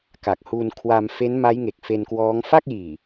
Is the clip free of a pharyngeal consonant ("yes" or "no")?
yes